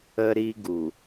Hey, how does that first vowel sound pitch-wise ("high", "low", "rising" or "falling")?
high